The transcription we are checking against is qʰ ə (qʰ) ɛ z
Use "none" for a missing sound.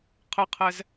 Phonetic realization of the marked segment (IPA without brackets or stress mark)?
qʰ